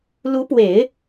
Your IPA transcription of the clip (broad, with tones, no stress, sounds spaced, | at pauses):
l u˧˥ p w e˨˩˦ ɪ̯